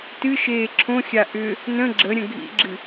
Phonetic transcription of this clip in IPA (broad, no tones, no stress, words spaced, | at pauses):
tɨʃeː ǁʰõxʲa ʔʏ | nə̃ ɡ͡ǁəɾʲə̃ ɡʱḭɡ͡ǁɨ